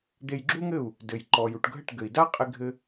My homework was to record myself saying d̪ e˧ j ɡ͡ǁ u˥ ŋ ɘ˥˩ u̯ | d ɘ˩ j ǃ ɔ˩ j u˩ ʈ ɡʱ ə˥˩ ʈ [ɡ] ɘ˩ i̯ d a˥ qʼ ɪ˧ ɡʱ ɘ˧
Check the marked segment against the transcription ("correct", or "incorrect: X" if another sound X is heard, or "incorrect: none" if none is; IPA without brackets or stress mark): correct